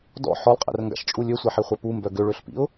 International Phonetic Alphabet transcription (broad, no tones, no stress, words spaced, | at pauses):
dɔ̰ ħɔlˠqʼɛ̰rŋɡa̰ʃt͡ʃʼu lʲøsʷɛħiχʷœ pumbœ ɡøɭøɬpḭʊ̯